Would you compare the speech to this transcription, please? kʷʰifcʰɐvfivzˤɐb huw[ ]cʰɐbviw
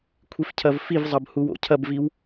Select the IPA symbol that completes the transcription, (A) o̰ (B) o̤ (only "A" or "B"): A